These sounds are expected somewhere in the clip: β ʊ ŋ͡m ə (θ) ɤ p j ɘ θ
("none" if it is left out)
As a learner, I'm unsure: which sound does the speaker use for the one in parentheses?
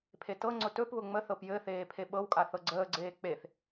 θ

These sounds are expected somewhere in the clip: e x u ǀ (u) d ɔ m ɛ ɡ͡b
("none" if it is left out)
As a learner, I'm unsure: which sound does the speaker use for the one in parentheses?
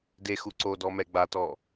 o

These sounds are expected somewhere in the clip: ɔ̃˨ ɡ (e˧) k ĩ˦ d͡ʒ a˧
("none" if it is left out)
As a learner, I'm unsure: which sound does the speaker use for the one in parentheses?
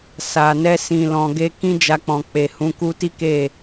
e˧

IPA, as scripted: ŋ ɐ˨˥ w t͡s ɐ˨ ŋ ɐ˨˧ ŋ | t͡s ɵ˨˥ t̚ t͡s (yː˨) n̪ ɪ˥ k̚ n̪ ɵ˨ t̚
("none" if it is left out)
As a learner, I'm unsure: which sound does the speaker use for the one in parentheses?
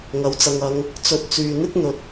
yː˨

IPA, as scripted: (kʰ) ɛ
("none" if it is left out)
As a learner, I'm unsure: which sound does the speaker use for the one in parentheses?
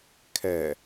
kʰ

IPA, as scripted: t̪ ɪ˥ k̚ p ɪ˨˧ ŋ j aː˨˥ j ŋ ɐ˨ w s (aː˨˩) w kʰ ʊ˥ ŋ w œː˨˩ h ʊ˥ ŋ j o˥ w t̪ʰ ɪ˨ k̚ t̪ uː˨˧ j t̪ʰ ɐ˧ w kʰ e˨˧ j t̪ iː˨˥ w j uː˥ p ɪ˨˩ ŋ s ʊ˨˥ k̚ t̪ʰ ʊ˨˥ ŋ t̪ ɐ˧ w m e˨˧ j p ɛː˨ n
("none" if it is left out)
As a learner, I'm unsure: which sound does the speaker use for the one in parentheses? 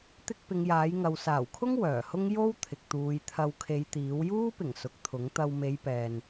aː˨˩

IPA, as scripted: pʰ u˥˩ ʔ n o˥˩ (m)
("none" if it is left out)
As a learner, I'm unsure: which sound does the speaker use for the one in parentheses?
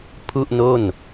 n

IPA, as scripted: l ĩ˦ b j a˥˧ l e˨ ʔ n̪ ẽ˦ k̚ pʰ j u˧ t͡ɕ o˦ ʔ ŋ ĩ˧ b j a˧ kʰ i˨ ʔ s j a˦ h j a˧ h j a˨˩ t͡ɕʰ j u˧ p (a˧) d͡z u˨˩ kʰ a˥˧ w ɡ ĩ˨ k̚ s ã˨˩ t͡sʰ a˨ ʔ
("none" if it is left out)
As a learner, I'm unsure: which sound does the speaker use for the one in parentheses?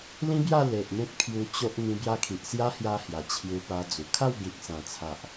a˧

